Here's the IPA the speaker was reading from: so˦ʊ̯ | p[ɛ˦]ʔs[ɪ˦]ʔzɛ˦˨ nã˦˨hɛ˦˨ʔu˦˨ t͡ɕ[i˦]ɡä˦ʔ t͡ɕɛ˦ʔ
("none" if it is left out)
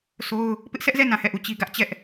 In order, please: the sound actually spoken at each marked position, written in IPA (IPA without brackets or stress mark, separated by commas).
ɪ˦, ɛ˦, i˦